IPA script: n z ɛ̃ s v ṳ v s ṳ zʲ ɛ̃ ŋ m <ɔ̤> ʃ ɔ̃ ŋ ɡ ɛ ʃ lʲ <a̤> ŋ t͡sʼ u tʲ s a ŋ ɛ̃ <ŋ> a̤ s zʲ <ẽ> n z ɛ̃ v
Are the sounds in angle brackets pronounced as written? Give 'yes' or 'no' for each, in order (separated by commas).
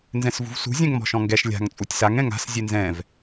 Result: yes, yes, yes, no